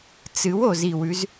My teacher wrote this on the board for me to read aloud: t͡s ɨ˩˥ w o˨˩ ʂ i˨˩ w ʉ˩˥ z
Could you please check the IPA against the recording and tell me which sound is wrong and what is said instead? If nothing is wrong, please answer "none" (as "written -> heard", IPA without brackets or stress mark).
ʂ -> z